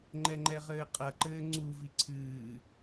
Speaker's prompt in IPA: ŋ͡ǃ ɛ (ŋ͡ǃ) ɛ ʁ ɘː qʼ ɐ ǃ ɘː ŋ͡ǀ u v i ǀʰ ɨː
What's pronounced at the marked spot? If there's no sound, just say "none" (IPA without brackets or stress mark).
ŋ͡ǃ